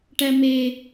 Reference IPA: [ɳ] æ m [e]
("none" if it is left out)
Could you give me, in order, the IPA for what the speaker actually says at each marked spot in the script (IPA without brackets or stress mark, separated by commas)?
ʈ, e